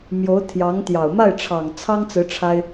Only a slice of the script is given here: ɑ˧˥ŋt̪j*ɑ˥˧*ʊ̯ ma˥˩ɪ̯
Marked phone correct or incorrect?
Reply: incorrect